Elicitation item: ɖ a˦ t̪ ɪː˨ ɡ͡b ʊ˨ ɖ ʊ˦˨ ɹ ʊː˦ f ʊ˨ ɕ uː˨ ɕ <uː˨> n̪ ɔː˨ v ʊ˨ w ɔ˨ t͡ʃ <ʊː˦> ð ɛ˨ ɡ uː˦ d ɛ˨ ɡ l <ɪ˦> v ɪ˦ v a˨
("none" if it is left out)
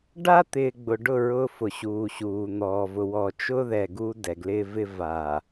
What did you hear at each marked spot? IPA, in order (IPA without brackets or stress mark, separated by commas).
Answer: uː˨, ʊː˦, ɪː˦